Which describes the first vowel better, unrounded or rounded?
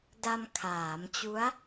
unrounded